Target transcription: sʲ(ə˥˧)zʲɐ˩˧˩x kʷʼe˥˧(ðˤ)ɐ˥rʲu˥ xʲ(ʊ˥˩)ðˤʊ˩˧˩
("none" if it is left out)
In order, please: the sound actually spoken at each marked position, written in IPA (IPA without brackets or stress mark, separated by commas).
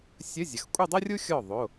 ə˧˥˧, dˤ, ɔ˥˩